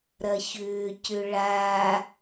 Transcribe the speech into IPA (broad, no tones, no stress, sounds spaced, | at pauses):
ɾ ɐ ç ʏː c ʏ ɭ a